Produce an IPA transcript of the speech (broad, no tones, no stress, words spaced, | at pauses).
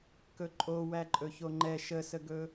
kɵǃʼo wæǃʼɵçoŋ͡ǃɛ ʃəsəɡɵ